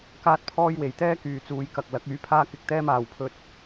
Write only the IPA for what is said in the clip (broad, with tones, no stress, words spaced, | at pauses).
kaː˥t̚pʰɔː˥jwe˨j t̪ɛː˥kyː˨t͡suː˨jkɐ˨k̚ lɐ˨˥k̚yː˨˥pʰaː˥kɪ˧k̚ t̪ɛː˥maː˨wpʰɵ˧t̚